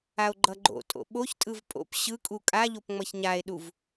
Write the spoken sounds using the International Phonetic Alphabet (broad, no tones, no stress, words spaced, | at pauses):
ao̯ɡ͡ǃʌɡ͡ǃo̰tʼo̰ ɓoçtʼɯv pʼo̰p ɕɯkʼu kʼaʎop ŋ͡mʌçɲae̯ɗuv